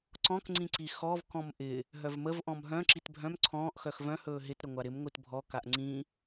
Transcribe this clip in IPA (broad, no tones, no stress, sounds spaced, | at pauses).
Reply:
ǀ ɔ̃ k ŋ͡ǀ ĩ ǀ i x ɔ v k ɔ̃ m ʔ ɪ | ɦ œ v m ə v ʔ ɔ̃ m ɦ œ̃ ǁ i t bʱ œ̃ m ǀʰ ɔ̃ː ʔ x œ x v œ̃ h ɵː ɦ ɪ t ɾ ə ŋʷ a ɾ ɪ m ŋʷ i t bʱ ɔ k a ʔ ŋ͡ǀ ĩ